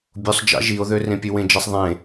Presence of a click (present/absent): absent